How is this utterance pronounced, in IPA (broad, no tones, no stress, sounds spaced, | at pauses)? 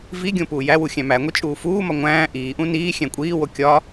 v i ɡʲ õ p uː j æ w u xʲ æ̃ m æ ŋʷ i t͡ʃʼ uː f uː m ɒ ŋʷ æ̃ː ʔ iː ʔ ũ n iː xʲ æ̃ kʷʼ iː w o kʲ ɒ